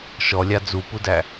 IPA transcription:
ʃ ɔ lʲ a d͡z u p u d æ

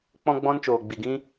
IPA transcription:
k͡p ɔ̃˦ ɡ͡b ɔ̃˦ n t͡ʃ oː˧ ɡ͡b i˧ ɡ ĩ˦

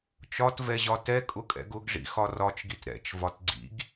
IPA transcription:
t͡ʃ ɒ t v ɛ ʑ ɒ t ɛ kʼ ʊ kʼ ɛ̰ ɡ ʊ ɡ ʐ ḭ x ɒ r ɒ t͡ʃ ɡ i t ɾ ɛ̰ t͡ʃ v ɒ t ɡ͡ǀ ḭ ɡ

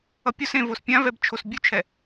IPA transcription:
ʌ pʲ o s ẽ v o s pʲ ã v ɛ b t͡ʃʰ o s bʲ u t͡ʃʰ ɛ

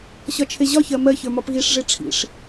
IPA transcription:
ɕ ɒ t͡ʃʰ e ʑ ɒ ç ɜ m ɜ ç ə˞ m ɒ p ɣ i ʂ ʐ e ʈ͡ʂʰ ḭ ʂ

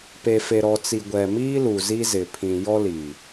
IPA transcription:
p e˨ f e˨ ɾ ɔ˨ t͡s i˨ ɡʷ ɛ˨ m iː˦ l u˨ z i˦ z ɪ˨ pʰ ĩ˨ j ɔ˦ l i˨

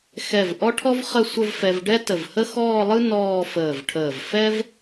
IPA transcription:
x ɛ˧˩ v ʔ ɔ˥ ʈʰ ɔ˥ v χ ə˥˧ sʷ ə˥˧ v f ɛ˧ v ɖ ɛ˥ t ə˧˩ v h ə˥ x ɔː˥˧ lˠ ɯ˥ n ɔː˥˧ f əː˧˩ v ʈʰ əː˧˩ v f ɛ˥ v

